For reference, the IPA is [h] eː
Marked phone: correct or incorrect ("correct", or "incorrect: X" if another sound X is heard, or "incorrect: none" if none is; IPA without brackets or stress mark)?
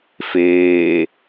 incorrect: f